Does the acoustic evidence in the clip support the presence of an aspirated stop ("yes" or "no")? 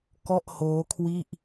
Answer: yes